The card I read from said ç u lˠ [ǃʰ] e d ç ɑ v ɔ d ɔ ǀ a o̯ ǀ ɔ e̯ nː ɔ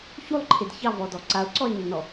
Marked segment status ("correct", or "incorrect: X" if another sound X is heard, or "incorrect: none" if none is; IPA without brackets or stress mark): correct